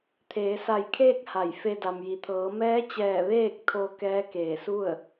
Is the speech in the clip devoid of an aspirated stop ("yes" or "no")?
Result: no